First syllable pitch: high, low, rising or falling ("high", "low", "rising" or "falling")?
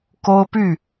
high